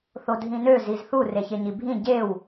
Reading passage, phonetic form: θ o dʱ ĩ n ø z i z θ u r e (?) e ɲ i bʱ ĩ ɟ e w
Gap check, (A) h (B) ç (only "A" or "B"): B